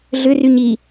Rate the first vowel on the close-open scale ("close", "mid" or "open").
close